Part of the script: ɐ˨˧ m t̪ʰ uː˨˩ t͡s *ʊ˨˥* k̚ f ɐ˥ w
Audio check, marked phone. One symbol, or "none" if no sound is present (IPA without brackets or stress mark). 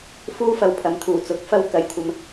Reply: ʊ˨˥